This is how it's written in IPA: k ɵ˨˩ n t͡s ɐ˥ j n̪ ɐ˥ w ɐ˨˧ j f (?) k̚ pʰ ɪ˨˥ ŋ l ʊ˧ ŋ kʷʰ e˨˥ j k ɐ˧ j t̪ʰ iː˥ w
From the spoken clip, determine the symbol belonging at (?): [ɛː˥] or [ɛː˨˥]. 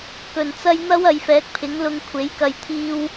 ɛː˨˥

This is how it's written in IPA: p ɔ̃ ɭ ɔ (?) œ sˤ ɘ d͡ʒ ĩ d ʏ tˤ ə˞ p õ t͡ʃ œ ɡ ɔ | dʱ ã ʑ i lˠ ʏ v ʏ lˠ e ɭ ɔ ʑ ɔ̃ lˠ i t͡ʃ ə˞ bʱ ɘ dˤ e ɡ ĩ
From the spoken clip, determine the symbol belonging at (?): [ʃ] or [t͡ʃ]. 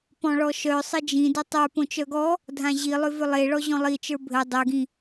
ʃ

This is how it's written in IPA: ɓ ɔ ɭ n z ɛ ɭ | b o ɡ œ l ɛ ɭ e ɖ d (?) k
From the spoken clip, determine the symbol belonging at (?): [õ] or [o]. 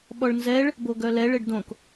õ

